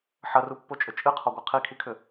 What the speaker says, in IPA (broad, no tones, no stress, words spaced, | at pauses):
ħɐrupːot͡ʃʼʏ t͡ʃʼɨqʰɔɡʷɤ qʰikʰikʰʏ